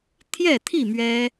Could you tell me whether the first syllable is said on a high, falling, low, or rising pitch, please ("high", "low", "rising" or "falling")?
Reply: falling